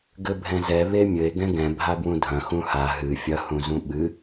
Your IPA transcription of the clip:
ɡɘbʱɛ̃zɛ βemʲɘe̯ ɡɛ̃ɡɛ̃ bʱabwũdʱɐ̃ xũha ɦɨ fʲɐhũzũ ɓɨ

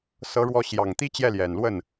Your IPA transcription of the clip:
sɤ˧˥ɻwɔ˧˥ ɕjɑ˨˩ŋt̪i˥ t͡ɕjɛ˥˩ljɛ˨˩nlwə˥˩n

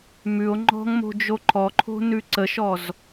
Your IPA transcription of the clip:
mʉo̯ ŋ͡ǃɔ̤ŋmo̤ d͡ʒoǃʰɔǃʰo̤ nʉǀəʃɔz

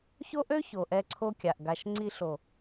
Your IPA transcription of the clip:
ço˦ʔø˦ ço˨ʔɛ˧ ǀʰo˦kʲa˨ʔɡa˧ʃ ŋ͡ǀi˧ɬo˨

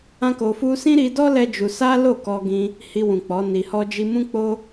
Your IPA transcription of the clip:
ã˦ko˧fu˦ sĩ˦ɾi˧dɔ˦ lɛ˦d͡ʒu˧ sa˦lo˦˨ kɔ˧ɡĩ˧ | hi˧wũ˨k͡pɔ˨˦ ni˧hɔ˦d͡ʒi˦ mũ˦k͡po˦

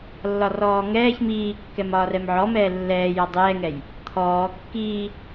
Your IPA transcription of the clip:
lːɒrɔːŋɛːç miːkːɛmɒː rɛmʕɔ mɛːlːɛːjɔ dˤɛːŋɛj | t̪ʰɔː kːiː

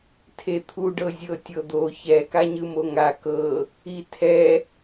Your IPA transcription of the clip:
tʰet̪ʰuɖɤ zʲɤtʲɤd̪o çɛka ɲɯmoŋa kɤ | itʰɛ

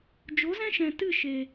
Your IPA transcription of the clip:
d͡ʒo˨˦zɛ̃˦ʃɛ̃˨ tɨ˦˨ ʃe˨

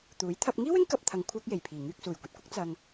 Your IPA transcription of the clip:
t̪uː˨˥j t̪ʰɐ˧p̚ŋiː˥wɪ˥ŋ kɐ˧p̚t̪ʰɐ˨ŋ kʷʰœː˥k̚je˨˩jpʰiː˨˩ ŋyː˧k̚suː˨˩jkʷɐ˨t̚kʷɐ˥k̚ t͡sɐ˧ŋ

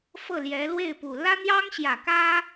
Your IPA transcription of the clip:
fɤ˥˩ljɛ˧˥ lwe˥˩ɪ̯pu˨˩ lä˥n̪jɑ˥ŋɕjä˨˩ kä˥

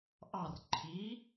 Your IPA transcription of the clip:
ʔɑr ǃʰi

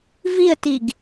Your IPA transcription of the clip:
viə̯tiɡ

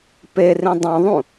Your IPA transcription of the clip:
perĩ dˤõðˤũ

